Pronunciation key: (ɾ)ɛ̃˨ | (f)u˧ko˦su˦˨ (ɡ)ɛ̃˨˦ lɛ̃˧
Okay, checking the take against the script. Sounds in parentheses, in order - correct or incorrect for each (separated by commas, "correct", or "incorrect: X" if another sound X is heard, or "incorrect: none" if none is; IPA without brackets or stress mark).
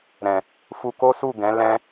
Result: correct, correct, correct